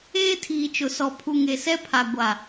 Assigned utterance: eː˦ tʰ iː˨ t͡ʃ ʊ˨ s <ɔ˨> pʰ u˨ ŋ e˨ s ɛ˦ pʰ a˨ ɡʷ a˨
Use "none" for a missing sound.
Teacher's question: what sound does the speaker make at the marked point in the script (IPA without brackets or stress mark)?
ɔ˨